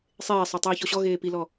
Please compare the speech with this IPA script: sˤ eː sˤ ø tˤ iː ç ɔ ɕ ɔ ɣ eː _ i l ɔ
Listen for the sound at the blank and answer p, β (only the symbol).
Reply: p